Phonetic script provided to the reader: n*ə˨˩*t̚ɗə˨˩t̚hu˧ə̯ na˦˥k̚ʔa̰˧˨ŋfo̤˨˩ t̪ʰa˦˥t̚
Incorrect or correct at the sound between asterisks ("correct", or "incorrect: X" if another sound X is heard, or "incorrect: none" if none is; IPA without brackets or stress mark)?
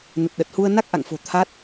correct